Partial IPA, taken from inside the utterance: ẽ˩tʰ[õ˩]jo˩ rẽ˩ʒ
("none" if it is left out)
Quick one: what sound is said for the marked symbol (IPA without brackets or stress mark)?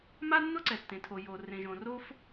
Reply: o˩